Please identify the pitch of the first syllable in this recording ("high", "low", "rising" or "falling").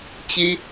high